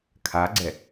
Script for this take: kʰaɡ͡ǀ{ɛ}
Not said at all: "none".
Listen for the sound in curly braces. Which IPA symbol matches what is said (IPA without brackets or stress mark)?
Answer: ɛ